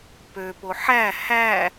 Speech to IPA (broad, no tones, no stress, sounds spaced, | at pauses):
p ø p o ħ æ h æ